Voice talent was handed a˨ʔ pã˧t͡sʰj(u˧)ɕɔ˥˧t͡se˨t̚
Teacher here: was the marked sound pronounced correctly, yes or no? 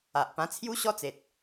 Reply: no